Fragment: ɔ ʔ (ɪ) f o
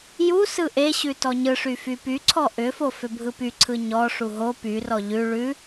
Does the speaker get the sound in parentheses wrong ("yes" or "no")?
yes